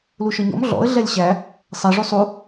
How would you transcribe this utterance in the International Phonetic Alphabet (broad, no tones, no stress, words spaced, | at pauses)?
luʃɔɲɔ̰m ɮɔ̰ə̯ ɮɛlʲɕæ | sˤɛ ʐusˤu